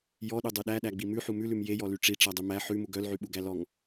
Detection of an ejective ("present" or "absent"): absent